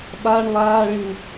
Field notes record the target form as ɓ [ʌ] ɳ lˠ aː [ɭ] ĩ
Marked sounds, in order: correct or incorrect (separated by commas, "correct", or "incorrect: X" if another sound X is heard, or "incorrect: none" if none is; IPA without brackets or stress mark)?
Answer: incorrect: a, correct